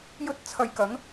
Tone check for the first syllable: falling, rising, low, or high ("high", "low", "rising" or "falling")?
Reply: high